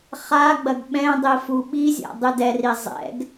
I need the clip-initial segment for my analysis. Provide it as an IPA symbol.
χ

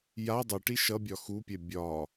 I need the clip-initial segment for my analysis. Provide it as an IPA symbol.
j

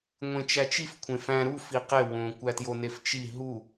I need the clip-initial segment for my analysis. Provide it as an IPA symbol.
ŋʷ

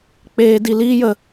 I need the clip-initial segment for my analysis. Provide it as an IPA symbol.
k͡p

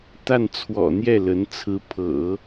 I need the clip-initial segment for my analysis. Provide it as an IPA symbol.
t̪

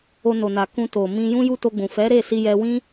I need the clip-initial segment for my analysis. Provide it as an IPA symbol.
o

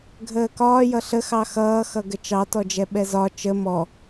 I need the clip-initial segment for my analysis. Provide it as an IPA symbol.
ɡʱ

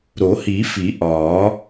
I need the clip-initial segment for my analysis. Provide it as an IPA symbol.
ɾ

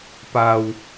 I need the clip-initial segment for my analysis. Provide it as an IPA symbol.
p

